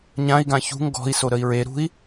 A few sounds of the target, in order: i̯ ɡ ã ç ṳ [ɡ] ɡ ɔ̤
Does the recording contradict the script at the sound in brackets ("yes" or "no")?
yes